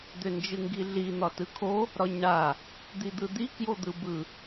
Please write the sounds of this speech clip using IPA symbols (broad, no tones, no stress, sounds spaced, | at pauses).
d̪ ʏ n d͡ʒ ɯ ŋ ɡ i ɮ i n̪ ɒ t ɯ kʰ o | ɾ ɒ ɲ ɳ a | d̪ i d̪ ɯ d̪ i k j o d̪ ɯ b ɯ